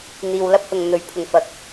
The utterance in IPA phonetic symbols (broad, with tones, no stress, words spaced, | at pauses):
n̪iː˨wlɐ˥p̚hʊ˨ŋn̪ɵ˨˥ɥ pʰʊ˨˩ŋfɐ˨˥k̚